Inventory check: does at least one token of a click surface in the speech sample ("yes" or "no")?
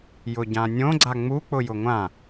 yes